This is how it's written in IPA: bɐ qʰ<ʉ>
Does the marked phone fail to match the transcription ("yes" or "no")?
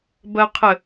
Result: yes